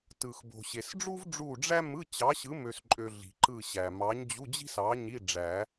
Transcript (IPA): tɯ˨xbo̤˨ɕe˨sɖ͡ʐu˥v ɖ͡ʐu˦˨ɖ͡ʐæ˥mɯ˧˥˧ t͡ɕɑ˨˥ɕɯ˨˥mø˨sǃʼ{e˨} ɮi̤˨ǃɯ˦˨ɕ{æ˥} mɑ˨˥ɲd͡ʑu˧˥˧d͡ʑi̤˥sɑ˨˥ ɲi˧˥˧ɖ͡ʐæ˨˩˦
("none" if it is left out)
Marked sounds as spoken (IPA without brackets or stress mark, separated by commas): ø˨, æ˨